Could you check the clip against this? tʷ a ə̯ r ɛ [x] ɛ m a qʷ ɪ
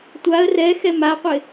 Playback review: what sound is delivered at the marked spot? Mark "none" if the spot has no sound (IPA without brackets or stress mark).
x